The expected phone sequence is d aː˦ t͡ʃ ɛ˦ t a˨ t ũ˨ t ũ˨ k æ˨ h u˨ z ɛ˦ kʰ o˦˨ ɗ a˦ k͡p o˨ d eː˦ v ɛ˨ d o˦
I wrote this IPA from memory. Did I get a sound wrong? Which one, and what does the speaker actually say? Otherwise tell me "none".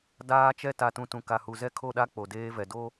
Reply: æ˨ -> a˨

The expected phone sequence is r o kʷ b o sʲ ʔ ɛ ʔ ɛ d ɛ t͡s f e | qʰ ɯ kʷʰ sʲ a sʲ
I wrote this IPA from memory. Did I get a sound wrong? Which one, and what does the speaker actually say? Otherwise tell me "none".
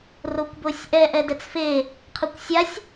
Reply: kʷʰ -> kʷ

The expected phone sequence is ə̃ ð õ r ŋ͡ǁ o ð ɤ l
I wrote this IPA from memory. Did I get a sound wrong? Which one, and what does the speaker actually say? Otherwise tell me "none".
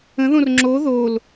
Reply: ɤ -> o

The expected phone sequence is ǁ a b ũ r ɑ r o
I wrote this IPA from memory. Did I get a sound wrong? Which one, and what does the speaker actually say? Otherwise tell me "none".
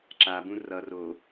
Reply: ɑ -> ʌ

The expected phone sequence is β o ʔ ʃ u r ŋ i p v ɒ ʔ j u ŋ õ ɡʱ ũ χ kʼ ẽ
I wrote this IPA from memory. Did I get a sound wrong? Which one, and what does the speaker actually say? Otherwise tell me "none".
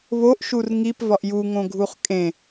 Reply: ũ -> u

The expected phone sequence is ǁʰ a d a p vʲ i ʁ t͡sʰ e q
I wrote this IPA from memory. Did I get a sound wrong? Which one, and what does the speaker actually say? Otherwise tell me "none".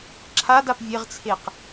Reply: i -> e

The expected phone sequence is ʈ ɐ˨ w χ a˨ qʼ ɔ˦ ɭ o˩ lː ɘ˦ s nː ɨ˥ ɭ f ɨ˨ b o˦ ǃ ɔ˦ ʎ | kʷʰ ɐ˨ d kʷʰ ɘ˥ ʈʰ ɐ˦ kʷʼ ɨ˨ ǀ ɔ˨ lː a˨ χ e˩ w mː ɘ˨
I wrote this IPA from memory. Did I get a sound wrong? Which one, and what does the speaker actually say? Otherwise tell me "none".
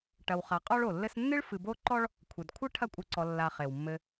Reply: ʎ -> ɭ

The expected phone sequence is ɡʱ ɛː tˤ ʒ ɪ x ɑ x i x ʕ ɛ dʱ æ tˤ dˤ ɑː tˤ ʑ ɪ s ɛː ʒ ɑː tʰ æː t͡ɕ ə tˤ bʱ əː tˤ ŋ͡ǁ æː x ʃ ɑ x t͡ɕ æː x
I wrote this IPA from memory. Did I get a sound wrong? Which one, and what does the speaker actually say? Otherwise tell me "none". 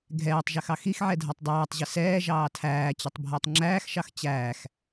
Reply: none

